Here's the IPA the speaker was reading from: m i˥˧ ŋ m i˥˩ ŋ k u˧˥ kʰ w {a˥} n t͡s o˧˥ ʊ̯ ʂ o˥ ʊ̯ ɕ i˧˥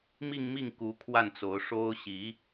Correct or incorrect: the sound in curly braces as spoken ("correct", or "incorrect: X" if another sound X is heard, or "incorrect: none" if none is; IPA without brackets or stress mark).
incorrect: a˥˩